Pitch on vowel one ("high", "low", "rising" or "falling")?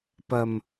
low